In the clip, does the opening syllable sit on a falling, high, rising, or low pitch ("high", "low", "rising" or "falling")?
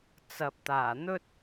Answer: low